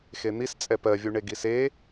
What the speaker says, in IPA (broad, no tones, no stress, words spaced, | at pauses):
xen̪is t͡sʼɛpɜvʲu ɳeɡise